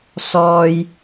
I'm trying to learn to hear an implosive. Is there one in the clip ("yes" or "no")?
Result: no